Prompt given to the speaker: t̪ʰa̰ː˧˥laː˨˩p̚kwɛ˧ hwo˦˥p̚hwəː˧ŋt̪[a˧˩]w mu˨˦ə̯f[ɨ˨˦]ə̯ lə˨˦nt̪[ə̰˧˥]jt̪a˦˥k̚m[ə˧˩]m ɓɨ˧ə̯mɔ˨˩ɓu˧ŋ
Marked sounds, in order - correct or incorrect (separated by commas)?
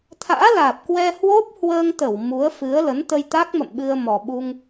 incorrect, correct, incorrect, incorrect